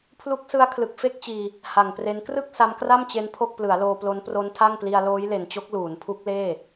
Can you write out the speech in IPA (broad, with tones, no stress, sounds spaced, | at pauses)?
pʰ l u˦˥ k̚ s ɯ˦˥ a̯ kʰ l ɯ˨˩ k̚ f e˥˩ k̚ t͡ɕ iː˧ | h a˨˩ ŋ p r e˦˥ n k r ɯ˥˩ k̚ s a˦˥ m k r a˥˩ m t͡ɕ e˦˥ n pʰ o˥˩ k̚ p l ɯ˩˦ a̯ l oː˧ p l o˦˥ n p r o˦˥ n tʰ a˥˩ ŋ p l i˧ a̯ l oː˦˥ j l e˨˩ n t͡ɕ o˦˥ k̚ l uː˩˦ n pʰ u˦˥ k̚ l eː˥˩